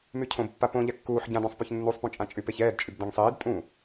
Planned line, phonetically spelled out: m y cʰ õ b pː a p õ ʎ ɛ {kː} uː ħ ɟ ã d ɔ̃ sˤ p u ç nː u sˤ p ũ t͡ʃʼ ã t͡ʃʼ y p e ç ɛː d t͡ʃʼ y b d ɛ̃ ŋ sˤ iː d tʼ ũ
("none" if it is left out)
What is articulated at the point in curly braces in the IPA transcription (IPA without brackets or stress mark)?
kː